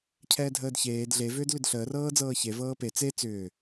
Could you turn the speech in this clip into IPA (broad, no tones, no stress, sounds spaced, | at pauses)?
cʰ ɛː dʱ əː d ç eː d ɮ e v ʏː d l ʏ d ɬ əː r ɤː d͡z ɤː ç e v ɤː p e t͡s e t͡s ʏː